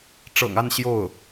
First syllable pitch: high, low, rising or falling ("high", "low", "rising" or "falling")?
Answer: low